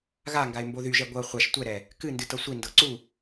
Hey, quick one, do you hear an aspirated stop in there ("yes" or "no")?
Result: no